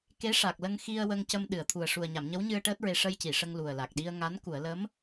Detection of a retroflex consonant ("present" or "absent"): present